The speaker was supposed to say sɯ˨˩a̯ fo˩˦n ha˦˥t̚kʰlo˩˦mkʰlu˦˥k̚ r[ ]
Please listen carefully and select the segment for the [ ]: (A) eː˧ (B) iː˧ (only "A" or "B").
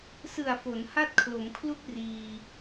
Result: B